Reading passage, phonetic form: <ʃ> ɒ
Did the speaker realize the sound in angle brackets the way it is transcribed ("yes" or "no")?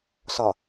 no